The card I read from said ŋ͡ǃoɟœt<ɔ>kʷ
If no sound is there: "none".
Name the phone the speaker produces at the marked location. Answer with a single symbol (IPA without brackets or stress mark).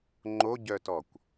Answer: ɔ